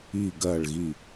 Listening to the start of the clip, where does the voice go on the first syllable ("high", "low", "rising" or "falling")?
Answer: low